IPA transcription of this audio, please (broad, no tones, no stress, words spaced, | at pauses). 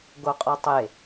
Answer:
ɡoqʼɔtˤe